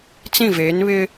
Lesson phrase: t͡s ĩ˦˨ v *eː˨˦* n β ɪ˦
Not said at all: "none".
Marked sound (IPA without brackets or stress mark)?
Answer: eː˨˦